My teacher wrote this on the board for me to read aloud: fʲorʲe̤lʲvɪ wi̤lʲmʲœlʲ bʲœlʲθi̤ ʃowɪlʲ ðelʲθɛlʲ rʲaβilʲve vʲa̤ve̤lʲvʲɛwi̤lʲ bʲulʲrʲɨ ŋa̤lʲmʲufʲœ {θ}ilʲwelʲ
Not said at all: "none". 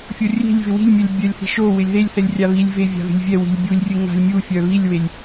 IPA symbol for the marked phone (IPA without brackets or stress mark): β